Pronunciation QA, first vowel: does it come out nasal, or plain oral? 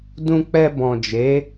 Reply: nasal